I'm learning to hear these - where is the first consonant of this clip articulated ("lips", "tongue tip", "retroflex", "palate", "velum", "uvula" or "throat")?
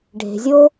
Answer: retroflex